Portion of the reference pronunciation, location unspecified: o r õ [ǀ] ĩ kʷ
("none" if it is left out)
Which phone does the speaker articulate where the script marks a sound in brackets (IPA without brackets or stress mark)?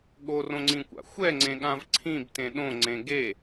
ŋ͡ǀ